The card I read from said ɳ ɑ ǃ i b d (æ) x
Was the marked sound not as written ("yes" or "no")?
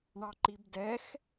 yes